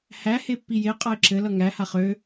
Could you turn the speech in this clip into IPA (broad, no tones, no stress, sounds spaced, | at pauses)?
h æ h e pː i j e qʼ ʌ ɪ̯ ǁ ɘ l ʌ ŋ æ h a χ ø